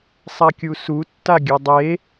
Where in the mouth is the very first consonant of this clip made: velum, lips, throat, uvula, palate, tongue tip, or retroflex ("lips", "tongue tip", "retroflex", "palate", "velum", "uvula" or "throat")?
tongue tip